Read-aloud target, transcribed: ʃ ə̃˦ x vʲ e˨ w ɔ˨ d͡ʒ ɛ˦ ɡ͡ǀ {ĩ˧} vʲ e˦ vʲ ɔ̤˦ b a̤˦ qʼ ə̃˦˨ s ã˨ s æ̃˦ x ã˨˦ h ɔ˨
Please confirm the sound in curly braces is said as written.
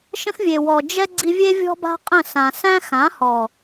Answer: no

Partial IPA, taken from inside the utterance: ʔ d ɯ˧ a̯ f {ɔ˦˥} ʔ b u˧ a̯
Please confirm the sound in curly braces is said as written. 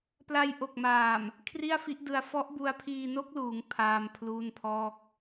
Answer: yes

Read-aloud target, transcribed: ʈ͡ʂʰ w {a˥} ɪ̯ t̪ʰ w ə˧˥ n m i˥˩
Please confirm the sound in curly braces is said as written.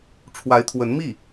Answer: no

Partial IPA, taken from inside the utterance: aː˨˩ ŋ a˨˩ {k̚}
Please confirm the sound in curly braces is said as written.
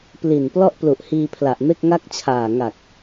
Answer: yes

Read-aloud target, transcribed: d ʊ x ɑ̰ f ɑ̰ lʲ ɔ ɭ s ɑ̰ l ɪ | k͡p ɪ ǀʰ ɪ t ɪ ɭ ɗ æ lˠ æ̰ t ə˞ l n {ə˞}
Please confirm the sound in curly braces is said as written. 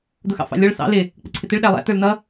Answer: no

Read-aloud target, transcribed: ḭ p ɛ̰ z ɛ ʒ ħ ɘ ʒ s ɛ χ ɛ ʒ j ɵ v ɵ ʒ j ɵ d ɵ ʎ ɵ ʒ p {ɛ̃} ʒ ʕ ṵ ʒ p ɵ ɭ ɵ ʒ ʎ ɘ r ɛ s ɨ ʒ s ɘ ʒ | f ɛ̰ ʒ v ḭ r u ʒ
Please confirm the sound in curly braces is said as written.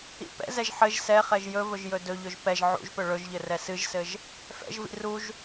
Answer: no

